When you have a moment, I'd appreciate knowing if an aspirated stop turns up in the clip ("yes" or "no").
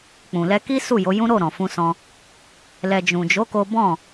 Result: no